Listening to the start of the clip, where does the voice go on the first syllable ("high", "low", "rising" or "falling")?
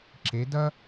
rising